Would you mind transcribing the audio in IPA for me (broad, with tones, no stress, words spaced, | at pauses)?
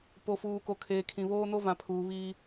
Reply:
po˨fuː˨ ko˨kʰeː˨kʰĩ˨ βoː˦no˦ vã˨pʰuː˨ βiː˦